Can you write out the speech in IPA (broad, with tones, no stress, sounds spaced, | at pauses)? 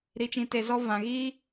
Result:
ɾ i˧ t͡ʃ ĩ˧ t e˧ z ɔ˦ v ã˨ ɣ iː˦